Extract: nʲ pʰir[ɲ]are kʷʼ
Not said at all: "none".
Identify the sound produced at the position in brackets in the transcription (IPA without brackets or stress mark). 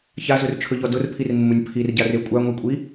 ɟ